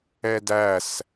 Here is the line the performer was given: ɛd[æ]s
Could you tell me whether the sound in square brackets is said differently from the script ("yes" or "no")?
no